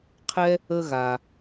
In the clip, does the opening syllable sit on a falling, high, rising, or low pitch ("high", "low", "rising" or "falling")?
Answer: high